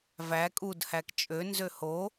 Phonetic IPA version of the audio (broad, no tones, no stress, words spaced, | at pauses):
væ kʼudhæk t͡ʃʼønzø ho